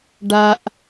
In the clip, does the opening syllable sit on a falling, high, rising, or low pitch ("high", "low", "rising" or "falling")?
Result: high